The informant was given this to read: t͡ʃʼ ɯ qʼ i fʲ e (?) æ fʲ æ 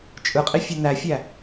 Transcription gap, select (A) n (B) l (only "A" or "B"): A